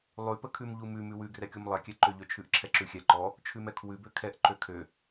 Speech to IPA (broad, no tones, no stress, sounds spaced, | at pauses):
lˠ ʉ p ə kʰ ʉ m ʎ u m ʉ m ʉ w ʉ ɡ r ɛ kʲ u m lˠ ɛ kʲ ɛ ǃ ø ʎ ø t͡ʃʰ ʉ ʔ ǁʰ ɛ ǁ ʉ xʲ ɛ ǃ ɔ | t͡ʃʰ ʉ m ɛ kʰ w ʉ b ø kʰ ɛ ʔ ǃ ø kʰ ø